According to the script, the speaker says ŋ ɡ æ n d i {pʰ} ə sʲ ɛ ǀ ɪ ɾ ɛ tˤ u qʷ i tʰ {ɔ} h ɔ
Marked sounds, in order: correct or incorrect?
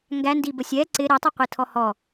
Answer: incorrect, correct

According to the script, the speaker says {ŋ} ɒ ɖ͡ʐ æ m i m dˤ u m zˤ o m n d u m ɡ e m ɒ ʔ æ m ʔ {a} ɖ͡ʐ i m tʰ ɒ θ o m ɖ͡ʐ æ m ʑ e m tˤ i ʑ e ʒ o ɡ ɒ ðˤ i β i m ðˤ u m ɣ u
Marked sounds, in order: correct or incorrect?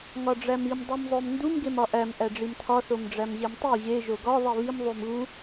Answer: correct, incorrect

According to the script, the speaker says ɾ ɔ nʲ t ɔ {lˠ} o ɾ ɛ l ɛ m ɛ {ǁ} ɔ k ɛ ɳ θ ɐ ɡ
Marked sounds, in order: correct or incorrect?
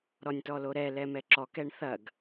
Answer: incorrect, correct

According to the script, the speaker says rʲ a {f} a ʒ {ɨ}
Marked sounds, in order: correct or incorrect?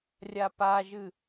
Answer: incorrect, correct

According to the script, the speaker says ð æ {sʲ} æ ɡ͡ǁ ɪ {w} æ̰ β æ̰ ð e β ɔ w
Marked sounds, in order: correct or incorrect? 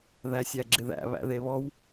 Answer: correct, incorrect

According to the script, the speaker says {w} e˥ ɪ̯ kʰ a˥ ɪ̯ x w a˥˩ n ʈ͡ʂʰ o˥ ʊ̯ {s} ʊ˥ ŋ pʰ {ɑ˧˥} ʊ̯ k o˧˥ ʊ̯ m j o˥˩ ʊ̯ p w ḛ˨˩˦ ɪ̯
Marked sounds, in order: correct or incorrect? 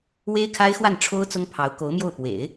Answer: correct, incorrect, correct

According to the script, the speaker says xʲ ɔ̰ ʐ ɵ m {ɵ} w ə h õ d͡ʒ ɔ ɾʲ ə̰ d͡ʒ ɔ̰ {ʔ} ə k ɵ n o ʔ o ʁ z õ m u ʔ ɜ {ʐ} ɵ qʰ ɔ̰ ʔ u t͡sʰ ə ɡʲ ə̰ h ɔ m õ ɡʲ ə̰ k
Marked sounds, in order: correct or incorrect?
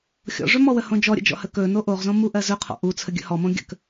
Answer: incorrect, incorrect, incorrect

